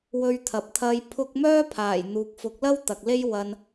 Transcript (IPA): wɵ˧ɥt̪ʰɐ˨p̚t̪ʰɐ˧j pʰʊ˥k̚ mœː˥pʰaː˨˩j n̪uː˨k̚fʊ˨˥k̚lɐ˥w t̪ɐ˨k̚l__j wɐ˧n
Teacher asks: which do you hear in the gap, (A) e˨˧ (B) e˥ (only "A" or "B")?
B